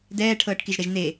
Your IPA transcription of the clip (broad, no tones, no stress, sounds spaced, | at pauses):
d ɛː ʈʰ ɤː ʈ k i ʒ ɾ ɛ ʒ n̪ e